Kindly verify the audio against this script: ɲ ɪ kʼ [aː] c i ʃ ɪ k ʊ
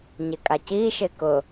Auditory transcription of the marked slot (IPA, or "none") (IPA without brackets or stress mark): a